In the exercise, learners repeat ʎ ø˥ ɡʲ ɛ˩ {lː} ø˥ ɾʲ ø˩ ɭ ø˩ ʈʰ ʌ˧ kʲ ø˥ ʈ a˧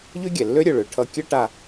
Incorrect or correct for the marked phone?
correct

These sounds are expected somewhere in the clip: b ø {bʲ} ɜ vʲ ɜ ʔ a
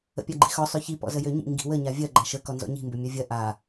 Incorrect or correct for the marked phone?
incorrect: mʲ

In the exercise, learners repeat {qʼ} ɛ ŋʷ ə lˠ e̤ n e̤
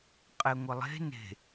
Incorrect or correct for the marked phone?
correct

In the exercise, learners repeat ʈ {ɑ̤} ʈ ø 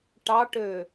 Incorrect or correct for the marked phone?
incorrect: ɑ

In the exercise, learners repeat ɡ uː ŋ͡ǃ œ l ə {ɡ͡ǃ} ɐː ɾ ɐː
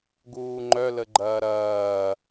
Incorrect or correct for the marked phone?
correct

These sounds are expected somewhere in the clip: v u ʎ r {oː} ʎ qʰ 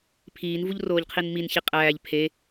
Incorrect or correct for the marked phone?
correct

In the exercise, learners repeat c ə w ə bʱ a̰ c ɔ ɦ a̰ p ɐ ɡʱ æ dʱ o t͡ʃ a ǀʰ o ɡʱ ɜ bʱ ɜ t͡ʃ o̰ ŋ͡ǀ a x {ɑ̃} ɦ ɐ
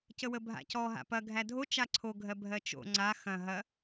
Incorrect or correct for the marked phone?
incorrect: ɐ̃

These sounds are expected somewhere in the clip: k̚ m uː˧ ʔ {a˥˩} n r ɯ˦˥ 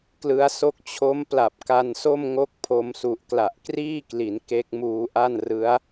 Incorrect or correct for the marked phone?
correct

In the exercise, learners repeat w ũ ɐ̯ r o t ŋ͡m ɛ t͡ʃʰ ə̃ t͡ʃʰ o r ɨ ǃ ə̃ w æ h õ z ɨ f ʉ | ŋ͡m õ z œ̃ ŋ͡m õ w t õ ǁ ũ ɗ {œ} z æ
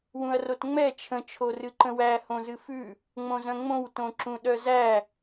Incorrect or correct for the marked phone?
correct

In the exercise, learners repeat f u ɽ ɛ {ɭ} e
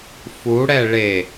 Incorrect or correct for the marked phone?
correct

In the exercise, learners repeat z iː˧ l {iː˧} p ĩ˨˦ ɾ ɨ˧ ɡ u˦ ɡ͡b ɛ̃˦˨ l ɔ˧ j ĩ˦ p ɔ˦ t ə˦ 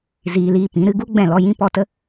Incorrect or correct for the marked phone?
correct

